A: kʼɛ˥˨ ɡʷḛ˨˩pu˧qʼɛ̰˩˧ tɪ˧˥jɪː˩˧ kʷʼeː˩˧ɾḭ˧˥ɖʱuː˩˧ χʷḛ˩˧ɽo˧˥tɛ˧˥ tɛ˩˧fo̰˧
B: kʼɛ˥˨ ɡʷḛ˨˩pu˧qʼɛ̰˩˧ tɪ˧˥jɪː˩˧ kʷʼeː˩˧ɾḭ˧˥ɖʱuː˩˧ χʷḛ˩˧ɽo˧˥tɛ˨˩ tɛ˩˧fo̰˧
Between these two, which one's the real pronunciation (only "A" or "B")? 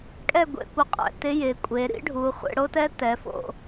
A